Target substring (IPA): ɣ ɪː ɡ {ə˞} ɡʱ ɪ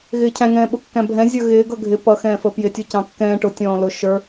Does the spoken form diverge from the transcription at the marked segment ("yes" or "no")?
yes